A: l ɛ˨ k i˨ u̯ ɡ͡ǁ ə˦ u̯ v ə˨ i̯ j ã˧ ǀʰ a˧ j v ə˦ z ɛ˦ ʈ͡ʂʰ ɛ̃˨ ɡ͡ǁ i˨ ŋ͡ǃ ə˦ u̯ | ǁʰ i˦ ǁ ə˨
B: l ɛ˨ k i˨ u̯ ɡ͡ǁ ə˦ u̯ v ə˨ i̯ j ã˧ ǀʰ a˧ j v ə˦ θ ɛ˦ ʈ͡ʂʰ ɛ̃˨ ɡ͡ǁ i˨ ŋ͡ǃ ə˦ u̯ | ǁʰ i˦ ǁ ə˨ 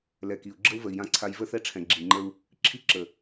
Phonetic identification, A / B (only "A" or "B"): B